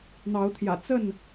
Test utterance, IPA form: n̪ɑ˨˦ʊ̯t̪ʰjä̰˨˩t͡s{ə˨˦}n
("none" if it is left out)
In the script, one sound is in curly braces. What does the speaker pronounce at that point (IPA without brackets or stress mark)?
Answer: ə˥˨